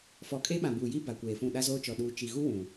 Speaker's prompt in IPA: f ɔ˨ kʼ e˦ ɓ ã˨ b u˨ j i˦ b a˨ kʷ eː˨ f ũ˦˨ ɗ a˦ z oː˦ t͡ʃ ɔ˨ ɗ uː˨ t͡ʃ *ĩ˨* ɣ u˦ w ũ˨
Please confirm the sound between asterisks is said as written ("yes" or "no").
no